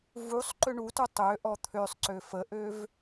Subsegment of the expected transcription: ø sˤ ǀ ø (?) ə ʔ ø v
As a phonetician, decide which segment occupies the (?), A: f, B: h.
A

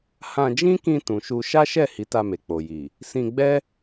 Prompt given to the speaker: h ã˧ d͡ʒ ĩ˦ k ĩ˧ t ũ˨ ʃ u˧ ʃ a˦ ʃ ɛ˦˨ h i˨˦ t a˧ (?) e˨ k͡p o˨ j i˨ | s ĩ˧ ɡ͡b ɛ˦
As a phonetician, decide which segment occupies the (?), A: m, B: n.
A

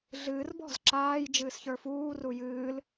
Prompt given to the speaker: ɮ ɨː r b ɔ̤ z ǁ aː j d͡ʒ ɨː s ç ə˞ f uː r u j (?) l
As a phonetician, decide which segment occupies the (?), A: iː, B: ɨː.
B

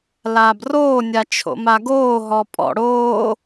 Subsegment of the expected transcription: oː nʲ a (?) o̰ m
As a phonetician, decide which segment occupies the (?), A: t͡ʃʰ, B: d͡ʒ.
A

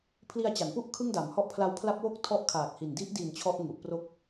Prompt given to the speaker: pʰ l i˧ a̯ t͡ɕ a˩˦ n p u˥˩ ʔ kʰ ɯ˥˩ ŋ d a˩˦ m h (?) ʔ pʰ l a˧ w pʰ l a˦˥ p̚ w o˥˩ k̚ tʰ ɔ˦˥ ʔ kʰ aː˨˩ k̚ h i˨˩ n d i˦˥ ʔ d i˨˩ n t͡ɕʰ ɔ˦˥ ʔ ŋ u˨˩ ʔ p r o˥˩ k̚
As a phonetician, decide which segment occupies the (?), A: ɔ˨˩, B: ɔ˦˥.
B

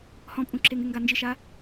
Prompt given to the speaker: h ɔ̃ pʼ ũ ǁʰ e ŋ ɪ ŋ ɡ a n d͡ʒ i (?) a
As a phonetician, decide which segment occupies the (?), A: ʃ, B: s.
A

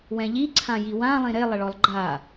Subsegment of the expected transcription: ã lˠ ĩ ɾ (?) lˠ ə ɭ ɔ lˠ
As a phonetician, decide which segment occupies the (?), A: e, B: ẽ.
A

